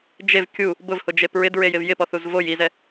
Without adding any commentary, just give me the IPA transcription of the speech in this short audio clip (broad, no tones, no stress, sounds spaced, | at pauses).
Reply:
d͡ʒ e v kʲ u | b ʊ v h ʊ d͡ʒ e p ɹ ɪ d ɹ e j ɪ v j ɪ p ɔ θ u z v o j i z ɛ